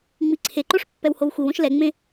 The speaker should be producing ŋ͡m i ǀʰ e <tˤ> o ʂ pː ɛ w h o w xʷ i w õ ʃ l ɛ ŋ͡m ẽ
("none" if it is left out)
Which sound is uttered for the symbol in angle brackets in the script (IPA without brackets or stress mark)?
ǃ